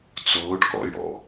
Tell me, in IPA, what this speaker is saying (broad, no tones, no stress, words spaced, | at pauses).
t͡sʊːɖkɔ̰jɽɔ̰